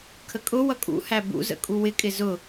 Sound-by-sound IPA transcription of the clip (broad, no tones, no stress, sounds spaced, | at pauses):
kʰ ə kʼ ʊ w ʌ kʼ ṵ h æ b ṵ z ə̰ kʼ u w ɪ kʼ ɪ z ʊ